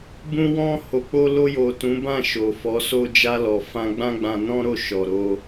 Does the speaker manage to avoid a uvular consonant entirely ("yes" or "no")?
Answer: yes